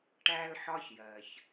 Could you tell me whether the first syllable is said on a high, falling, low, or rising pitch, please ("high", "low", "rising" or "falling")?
high